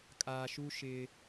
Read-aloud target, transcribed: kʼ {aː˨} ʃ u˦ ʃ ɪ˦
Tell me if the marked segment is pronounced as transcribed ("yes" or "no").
yes